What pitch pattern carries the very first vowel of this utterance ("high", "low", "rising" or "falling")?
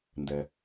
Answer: low